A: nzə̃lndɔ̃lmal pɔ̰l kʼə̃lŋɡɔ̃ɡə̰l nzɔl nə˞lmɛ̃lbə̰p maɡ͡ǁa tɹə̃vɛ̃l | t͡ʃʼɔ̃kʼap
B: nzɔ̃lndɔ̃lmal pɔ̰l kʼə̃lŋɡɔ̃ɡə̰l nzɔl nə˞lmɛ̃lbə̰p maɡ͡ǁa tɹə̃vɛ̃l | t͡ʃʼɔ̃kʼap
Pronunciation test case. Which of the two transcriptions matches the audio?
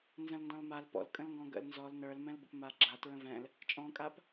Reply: A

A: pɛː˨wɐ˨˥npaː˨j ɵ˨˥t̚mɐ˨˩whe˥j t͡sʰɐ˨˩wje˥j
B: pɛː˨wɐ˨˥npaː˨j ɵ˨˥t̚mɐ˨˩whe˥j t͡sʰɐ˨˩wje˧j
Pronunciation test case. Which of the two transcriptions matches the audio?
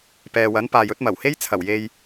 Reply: B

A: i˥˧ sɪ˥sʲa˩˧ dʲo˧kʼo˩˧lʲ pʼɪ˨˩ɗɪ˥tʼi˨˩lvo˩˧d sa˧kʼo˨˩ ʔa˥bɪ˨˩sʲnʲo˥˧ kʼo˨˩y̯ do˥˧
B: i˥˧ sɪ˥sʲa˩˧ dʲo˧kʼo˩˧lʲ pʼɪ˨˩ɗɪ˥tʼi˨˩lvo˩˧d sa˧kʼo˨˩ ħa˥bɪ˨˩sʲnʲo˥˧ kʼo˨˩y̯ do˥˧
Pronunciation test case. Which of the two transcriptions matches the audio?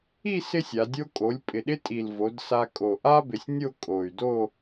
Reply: A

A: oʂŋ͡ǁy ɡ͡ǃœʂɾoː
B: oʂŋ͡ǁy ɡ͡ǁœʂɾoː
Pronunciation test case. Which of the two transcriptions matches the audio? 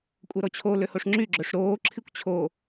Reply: B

